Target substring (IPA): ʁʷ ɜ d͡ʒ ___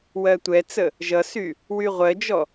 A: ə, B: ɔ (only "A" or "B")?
B